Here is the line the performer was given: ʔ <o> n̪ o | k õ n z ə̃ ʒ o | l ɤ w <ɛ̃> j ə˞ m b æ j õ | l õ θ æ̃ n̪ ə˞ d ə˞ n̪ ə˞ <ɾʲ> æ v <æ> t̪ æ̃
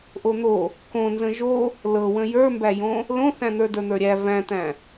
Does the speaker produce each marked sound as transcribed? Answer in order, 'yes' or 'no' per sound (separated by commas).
yes, no, yes, no